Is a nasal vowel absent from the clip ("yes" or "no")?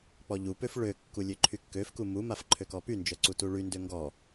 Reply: yes